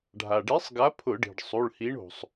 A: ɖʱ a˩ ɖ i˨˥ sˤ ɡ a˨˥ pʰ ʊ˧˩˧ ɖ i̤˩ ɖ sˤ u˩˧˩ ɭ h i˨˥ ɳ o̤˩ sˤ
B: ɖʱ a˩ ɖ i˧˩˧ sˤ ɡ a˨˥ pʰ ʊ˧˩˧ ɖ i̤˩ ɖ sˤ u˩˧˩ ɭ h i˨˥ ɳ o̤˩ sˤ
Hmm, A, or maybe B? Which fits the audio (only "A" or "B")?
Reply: A